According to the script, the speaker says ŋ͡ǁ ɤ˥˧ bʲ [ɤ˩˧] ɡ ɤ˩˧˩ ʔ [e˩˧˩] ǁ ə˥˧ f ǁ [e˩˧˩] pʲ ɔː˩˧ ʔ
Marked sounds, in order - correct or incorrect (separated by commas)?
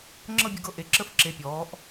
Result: correct, correct, correct